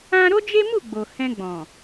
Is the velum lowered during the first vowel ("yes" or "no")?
yes